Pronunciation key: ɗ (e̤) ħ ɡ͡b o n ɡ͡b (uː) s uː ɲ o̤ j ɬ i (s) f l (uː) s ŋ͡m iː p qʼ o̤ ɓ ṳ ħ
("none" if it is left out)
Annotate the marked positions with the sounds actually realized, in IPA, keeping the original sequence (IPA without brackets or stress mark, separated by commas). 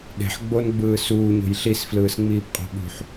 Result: e̤, ɯː, s, ɯː